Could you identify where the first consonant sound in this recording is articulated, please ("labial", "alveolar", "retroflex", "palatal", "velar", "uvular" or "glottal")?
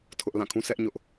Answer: alveolar